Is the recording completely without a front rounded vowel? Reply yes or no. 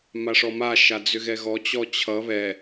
no